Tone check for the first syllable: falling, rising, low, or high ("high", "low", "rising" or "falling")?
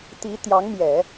rising